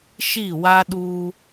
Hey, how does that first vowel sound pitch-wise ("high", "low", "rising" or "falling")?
falling